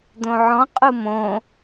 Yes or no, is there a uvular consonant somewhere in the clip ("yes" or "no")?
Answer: yes